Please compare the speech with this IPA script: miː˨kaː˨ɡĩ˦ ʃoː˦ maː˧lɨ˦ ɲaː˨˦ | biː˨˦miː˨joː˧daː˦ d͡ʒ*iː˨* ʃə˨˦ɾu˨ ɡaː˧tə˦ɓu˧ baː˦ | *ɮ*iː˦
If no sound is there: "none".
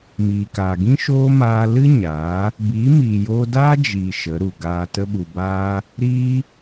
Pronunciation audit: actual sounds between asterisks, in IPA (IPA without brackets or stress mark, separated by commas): iː˨, ɾ